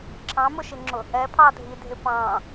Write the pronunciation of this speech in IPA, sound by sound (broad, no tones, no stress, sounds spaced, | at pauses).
ǁʰ ɑ̃ m ʊ ʃ ɪ ŋ͡ǁ ʊ | ɛ pʰ ɑ dʱ i dʱ ɪ p ɑ̃